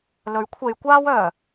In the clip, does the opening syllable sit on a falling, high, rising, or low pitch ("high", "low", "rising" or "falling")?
rising